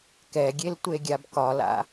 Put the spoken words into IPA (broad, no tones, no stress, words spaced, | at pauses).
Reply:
kɛɡʲel tʷeɡʲabkɒla̰